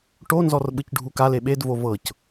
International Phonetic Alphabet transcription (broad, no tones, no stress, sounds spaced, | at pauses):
ʈ o n z ɔ r ɓ ɯ c ɖʱ u k a l e ɓ e d v o v ɤ c